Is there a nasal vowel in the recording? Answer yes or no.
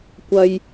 no